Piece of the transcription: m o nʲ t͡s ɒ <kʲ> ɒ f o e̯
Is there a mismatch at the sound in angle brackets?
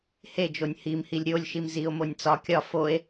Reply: no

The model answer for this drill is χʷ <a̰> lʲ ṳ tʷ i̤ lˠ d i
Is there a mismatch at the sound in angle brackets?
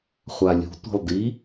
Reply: yes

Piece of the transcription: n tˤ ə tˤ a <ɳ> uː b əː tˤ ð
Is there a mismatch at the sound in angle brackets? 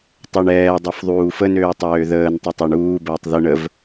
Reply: no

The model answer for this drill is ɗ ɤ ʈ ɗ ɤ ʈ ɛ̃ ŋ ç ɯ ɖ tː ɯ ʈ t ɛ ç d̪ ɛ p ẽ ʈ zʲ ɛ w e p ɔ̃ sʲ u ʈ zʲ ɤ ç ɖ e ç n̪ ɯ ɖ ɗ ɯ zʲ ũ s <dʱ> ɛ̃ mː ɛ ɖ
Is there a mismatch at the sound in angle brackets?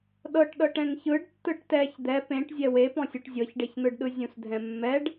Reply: no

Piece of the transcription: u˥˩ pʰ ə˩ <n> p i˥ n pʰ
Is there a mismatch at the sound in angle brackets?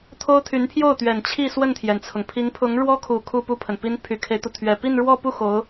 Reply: no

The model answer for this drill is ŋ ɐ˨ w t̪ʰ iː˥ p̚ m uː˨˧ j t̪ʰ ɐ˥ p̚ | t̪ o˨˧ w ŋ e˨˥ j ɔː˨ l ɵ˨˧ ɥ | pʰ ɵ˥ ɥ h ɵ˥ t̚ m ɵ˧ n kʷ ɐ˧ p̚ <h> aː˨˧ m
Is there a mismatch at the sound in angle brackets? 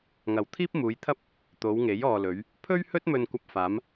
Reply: yes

